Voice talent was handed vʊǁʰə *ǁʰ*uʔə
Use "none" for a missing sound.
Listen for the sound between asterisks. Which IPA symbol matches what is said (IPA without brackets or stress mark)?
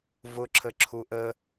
ǁʰ